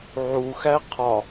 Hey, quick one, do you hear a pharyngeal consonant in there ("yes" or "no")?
yes